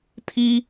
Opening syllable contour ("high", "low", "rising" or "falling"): high